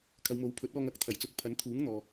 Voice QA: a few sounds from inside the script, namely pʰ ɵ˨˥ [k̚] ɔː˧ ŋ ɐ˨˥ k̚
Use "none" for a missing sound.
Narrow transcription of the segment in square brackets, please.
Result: t̚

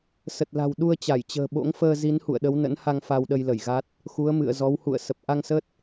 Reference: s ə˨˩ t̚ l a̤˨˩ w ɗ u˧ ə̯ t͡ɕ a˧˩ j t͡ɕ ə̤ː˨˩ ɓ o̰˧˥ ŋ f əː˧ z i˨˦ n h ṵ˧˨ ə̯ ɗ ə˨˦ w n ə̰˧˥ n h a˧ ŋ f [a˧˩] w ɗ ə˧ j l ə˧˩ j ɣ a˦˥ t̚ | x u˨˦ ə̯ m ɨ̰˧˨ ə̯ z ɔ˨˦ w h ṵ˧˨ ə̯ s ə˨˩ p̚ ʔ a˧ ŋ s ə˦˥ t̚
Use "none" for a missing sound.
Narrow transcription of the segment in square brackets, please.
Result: a˧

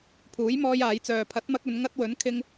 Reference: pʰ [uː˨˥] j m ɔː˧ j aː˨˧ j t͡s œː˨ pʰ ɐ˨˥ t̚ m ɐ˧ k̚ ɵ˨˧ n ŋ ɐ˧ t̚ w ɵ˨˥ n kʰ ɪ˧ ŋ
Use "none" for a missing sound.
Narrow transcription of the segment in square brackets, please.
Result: uː˨˥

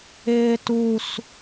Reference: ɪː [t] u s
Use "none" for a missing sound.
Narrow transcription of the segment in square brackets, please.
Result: t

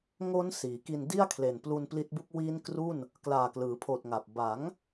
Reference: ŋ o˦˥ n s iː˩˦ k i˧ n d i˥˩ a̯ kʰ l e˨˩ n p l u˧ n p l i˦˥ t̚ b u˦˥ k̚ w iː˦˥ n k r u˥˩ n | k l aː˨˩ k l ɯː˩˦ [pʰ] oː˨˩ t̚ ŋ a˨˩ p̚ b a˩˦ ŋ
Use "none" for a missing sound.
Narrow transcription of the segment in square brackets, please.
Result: pʰ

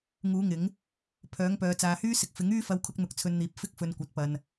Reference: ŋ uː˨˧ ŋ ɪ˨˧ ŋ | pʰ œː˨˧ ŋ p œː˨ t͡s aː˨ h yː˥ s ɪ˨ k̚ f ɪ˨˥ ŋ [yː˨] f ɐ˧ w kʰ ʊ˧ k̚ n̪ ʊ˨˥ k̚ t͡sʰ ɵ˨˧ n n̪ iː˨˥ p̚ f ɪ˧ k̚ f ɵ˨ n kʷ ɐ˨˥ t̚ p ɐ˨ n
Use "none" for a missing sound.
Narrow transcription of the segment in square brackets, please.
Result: yː˥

